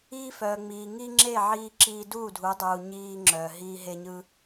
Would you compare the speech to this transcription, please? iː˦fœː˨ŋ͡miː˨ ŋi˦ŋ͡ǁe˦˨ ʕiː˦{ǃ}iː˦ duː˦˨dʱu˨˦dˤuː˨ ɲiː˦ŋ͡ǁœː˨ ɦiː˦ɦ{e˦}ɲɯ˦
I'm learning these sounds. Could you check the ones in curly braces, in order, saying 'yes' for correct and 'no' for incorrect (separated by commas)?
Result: no, yes